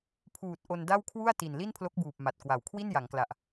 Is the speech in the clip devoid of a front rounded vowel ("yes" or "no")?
yes